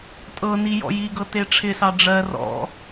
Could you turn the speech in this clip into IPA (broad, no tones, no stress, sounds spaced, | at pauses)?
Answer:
tʼ ɤ n i j ɔ̰ j i ɡ ɤ t e ʈ͡ʂʰ ɪ s ɑ ɖ͡ʐ ɜ r ɔ̰